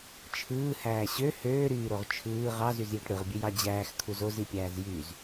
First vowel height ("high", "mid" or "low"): high